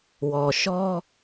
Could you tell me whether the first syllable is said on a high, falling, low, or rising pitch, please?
low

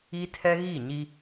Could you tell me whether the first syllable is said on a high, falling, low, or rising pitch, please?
high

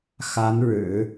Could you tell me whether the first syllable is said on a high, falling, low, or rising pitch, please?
rising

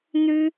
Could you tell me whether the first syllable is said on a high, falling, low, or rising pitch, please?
high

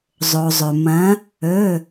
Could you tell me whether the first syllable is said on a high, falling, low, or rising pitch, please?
low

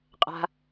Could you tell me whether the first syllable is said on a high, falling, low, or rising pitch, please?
low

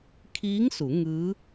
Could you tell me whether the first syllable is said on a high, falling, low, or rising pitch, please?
rising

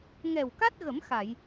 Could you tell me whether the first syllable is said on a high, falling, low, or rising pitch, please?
low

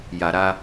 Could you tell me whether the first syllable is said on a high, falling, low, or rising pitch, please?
low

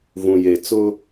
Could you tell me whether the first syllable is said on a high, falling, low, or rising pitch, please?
low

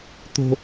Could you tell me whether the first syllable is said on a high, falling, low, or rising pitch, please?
high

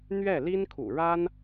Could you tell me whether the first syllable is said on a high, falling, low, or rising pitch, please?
falling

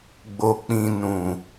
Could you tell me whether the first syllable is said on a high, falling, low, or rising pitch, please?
low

